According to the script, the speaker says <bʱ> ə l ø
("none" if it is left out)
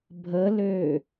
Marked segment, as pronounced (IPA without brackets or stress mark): bʱ